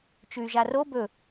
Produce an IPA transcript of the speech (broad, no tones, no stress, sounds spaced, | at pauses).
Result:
t͡ʃ ʉ y̯ ʒ a r o b ɵ